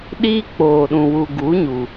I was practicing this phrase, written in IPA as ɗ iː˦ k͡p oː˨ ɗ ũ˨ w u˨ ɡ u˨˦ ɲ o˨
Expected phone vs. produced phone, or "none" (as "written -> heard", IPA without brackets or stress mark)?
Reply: o˨ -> u˨